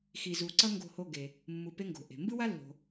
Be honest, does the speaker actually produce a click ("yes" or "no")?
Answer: yes